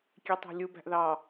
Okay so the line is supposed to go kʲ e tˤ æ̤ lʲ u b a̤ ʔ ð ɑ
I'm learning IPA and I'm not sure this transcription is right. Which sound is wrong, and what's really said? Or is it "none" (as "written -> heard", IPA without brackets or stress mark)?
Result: a̤ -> æ̤